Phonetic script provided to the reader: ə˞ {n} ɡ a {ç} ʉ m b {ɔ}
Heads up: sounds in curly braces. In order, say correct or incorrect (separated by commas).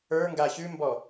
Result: incorrect, correct, correct